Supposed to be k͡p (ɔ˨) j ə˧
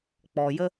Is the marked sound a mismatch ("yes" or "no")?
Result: no